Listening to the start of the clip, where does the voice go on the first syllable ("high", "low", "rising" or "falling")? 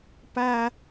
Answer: high